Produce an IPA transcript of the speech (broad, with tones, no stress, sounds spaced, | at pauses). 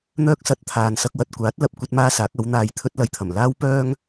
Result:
n̪ œː˥ k̚ s ɐ˧ t̚ t̪ʰ aː˨ n s ɐ˧ k̚ w ɐ˧ t̚ kʷ aː˨˥ t̚ l ɐ˨ p̚ kʷ ɐ˥ t̚ m aː˥ s aː˨˥ k̚ ɐ˨˥ w n̪ aː˧ j t̪ʰ ɵ˥ t̚ l ɐ˧ j t̪ʰ ɐ˨˩ m l aː˥ w p œː˥ ŋ